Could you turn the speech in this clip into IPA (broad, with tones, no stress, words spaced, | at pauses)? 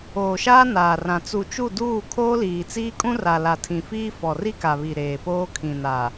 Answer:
oː˨ʃaː˦ naː˨rã˨ t͡su˨t͡ʃu˦˨duː˦˨ kʰoː˦liː˨t͡siː˦ kʼũ˦ra˨la˨ tʰĩ˨fiː˦ fɔ˨ri˦ka˨βi˨ ɾeː˨poː˦kʰĩ˨na˨